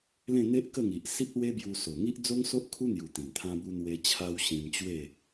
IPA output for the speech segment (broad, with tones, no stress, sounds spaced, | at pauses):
l ẽ˥˧ n̪ e˦ ʔ k ə˥˧ ŋ i˨ ʔ s i˦ p̚ l w e˦ b j u˧ s o˨˩ ŋ i˦ ʔ d͡z o˦ ŋ s o˦ ʔ kʰ u˦ n̪ j u˨˩ t̪ ĩ˨˩ ŋ t̪ʰ ã˦ b u˦ n̪ w e˧ t͡ɕʰ a˧ w ɕ ĩ˧ m t͡ɕ w e˥˧